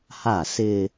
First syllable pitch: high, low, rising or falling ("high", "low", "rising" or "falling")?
falling